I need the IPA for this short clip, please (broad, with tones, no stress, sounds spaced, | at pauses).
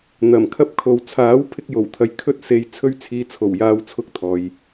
n̪ ɐ˨˩ m kʰ ɐ˧ p̚ kʰ o˨ w t͡sʰ aː˨˥ w pʰ ɪ˧ k̚ j o˨˩ w t̪ʰ ɐ˨ j kʰ ɵ˧ t̚ s e˨ j t͡sʰ ɵ˧ ɥ t͡sʰ iː˨˧ t͡sʰ o˨˩ w j aː˧ w t͡sʰ ʊ˧ k̚ t̪ʰ ɔː˨ j